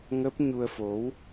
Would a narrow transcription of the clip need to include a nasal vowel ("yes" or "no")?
no